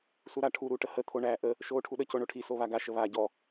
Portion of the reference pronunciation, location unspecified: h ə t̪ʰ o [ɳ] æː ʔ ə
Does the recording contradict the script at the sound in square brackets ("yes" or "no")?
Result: no